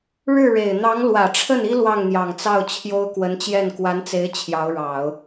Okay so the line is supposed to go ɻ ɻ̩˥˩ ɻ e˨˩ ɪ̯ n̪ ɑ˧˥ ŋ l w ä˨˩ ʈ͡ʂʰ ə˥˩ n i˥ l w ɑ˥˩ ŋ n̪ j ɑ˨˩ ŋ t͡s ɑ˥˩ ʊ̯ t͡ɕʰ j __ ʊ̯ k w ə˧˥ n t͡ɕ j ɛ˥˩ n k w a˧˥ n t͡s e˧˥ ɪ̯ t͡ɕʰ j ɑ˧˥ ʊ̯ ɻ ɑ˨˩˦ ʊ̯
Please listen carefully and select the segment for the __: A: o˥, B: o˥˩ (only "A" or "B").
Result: A